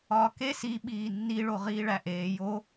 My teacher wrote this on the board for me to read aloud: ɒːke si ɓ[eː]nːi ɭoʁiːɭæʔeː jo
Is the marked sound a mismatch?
yes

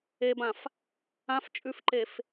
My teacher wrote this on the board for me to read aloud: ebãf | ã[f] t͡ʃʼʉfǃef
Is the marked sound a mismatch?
no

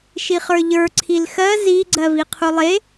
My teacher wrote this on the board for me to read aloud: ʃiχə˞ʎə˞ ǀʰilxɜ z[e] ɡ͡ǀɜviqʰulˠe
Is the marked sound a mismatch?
yes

